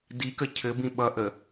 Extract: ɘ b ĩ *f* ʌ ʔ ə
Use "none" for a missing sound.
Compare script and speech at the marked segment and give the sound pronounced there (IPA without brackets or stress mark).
ɓ